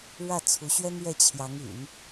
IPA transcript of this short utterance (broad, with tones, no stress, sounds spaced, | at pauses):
ɻ ä˥˩ t͡sʰ u˧˥ ɕ ɥ ɛ˥ n ɥ ɛ˥˩ t͡ɕʰ j ɑ˧˥ ŋ y̰˨˩˦ n